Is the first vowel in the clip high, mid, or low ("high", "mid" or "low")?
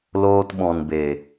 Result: mid